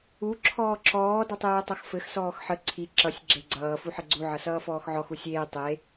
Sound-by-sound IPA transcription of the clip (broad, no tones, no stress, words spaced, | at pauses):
u ǁʰɔːǁɔː dʌtˤeːtˤʌxfɘx sɔːxħə ǀʰi ǁʌsʲ ɡ͡ǁeɡ͡ǀʌː fuħɘɡ͡ǀu ʕʌsʌːfɔːxʕɔx usʲeː tˤe